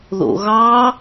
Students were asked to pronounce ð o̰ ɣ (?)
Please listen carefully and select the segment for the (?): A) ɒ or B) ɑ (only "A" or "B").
B